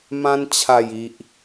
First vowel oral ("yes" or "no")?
no